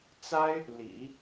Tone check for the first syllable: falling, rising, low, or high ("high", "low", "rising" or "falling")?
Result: high